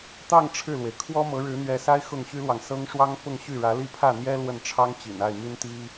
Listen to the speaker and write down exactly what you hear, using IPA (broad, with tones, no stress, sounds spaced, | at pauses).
t̪ ɑ˥˧ ŋ ʈ͡ʂʰ ɻ̩˥˩ l w e˩ ɪ̯ kʰ w ɔ˥ m ɤ˧˥ ɻ ɻ̩˧˥ n̪ ɥ ɛ˧˥ s a˥ ɪ̯ x ʊ˥˩ ŋ ɕ y˥ l w ɑ˨ ŋ s ɤ˥ ŋ ʂ w ɑ˥ ŋ p ʊ˥˧ ŋ ɕ y˥˩ ɻ ä˧˥ l i˥˧ pʰ ä˥˩ n̪ j ɛ˥ l w ə˥˩ n ʈ͡ʂʰ ɑ˥ ŋ t͡ɕ ḭ˨˩ n a˥˩ ɪ̯ m y˥ n t̪ i˥